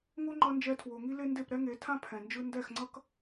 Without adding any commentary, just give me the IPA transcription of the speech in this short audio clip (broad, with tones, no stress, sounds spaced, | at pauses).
ŋ o˦ ŋ͡ǃ ʌ˧ n d͡ʒ ɛ˧ tʰ w o˨ ŋ i˦ l e˦ n d e˦˨ p ɾ ɛ˦ ŋ e˨˦ tʰ ã˦ pʰ ɛ̃˨ n d͡ʒ ɯ˦ n d ɛ˦˨ x ŋ͡ǀ ʌ˦ k